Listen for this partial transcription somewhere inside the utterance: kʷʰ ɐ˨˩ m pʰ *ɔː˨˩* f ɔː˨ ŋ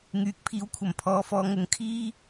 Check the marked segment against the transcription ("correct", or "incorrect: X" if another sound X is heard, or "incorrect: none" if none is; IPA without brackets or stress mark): incorrect: ɔː˨